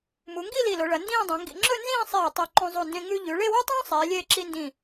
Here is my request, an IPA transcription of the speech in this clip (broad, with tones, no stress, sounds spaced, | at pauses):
m u˩˧ ŋ ɡ i˥˧ l i˧˩ l o˩˧ ɭ ɐ˩˧ n d ĩː˥˧ dˤ ẽ˩˧ ŋ ɡ ḭ˧ ŋ͡ǁ ɵ˥˧ n z ĩː˥˧ sˤ eː˧˩ tˤ o˧ ǃ õ˧ zˤ u˧˩ n d ẽ˧ ŋ ʉ˥ ʎ ʉ˩˧ ɭ e˥˧ w ʉ˥ tˤ ũː˥ sˤ eː˩˧ lʲ eː˧ ǁ i˧ n d ĩ˧˩